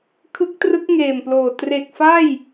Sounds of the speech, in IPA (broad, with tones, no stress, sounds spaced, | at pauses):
kʰ ɯ˦˥ k̚ t r ɯ˦˥ k̚ ŋ eː˨˩ m p l oː˨˩ t r e˨˩ k̚ f a˥˩ j